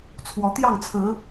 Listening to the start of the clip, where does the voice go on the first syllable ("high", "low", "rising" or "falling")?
rising